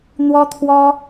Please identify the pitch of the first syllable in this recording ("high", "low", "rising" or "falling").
high